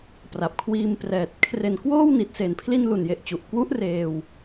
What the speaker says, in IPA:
p r a˨˩ p̚ kʰ w iː˧ m p r ɛː˨˩ t̚ kʰ r e˨˩ n k w oː˥˩ w n i˨˩ t̚ s e˩˦ n pʰ l i˧ n l u˨˩ n j e˨˩ ʔ t͡ɕ u˨˩ ʔ k w u˦˥ ʔ r eː˧ w

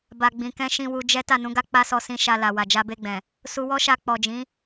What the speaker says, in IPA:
b a˨ ɡ͡b ĩ˨ k ɛ̃˧ ʃ ĩ˧ w u˧ d͡ʒ ɛ˦ t a˦˨ n ũ˨˦ ɡ a˦ k͡p a˦ s ɔ˧ s ĩ˧ ʃ a˧ l a˨ w a˨ d͡ʒ a˧ b e˧ ɡ͡b ɛ̃˨ | s u˧ w ɔ˦ ʃ a˧ k͡p ɔ˨ d͡ʒ ĩ˨˦

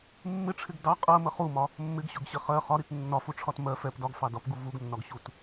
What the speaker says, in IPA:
mː ɪ ʈ͡ʂʰ ɪ ɡ d ɑ qʼ ɜ m ə χ u m ɒ | mː ɪ ɡ ɕ ʊ ɡ ɕ ɪ χ ɜ χ ɒ ɾ i t nː ɒ f u ʈ͡ʂʰ ɒ t m ɜ f ɛ p d ɒ ɡ f ɑ d ɒ p ɡ u v u ɡ nː ɒ ɡ ɕ u t

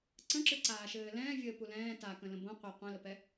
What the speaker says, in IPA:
ǀ ə̃ ǁ ɨ ǀ aː ʃ ɘː l ɛ̃ː vʲ ɘː p u l ɛ̃ː t a k ə̃ l ə̃ b õ qʷ ɛ qʷ ɛ̃ l ə p ɛ

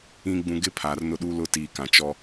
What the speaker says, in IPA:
ĩ˨ ɡ͡b ũ˨ ɡ ɪ˦ pʰ aː˨ r n ʊ˦ ɗ uː˦ l ʊ˦˨ t iː˨ k ã˨ t͡ʃ ɔ˦

